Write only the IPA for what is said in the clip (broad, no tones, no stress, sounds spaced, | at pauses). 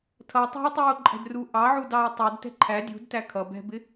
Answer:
tʰ ʌ tˤ ṳ e̯ tˤ u o̯ ǃʼ ɛ̤ d r u ʔ ɑ ʕ u d ɑ o̯ tˤ u d t ɛ̤ ǃʰ æ dʲ ṳ d t æ kʰ ʌ b ɛ̤ b ɪ